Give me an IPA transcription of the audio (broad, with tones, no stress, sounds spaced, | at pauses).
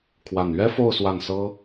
kʰ w a˥˩ n ɥ ɛ˥ f o˥˧ ʊ̯ s w a˥˩ n s ɤ˥